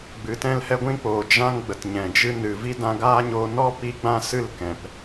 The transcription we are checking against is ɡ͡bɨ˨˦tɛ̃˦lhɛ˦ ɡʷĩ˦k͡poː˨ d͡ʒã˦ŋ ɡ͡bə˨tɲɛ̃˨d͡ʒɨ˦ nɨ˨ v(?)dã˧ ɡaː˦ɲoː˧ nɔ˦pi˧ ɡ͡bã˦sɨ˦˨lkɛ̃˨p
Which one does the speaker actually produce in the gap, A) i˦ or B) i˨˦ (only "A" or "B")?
A